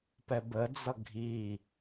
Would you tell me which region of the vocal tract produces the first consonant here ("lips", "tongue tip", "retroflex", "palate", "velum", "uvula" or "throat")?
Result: lips